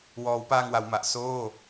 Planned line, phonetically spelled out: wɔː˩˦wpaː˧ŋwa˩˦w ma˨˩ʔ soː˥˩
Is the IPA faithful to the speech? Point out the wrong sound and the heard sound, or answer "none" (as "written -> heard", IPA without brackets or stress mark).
none